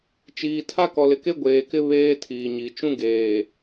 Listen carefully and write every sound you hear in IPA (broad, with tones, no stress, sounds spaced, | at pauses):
t͡ʃ iː˨ tʰ a˦ k ɔ˨ l ɪ˨ k e˦ ɡʷ eː˨ k ɪ˦ β eː˦ tʰ iː˨ ɲ i˨ t͡ʃ ũ˦ ɡ eː˨